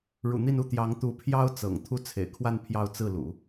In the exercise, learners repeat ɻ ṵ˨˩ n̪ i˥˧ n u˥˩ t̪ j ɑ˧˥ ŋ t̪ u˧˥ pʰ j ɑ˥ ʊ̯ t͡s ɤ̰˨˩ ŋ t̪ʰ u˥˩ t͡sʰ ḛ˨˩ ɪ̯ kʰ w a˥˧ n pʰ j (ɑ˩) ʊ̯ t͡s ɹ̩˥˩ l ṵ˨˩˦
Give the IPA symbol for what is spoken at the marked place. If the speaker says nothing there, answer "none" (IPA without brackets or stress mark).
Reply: ɑ˥˧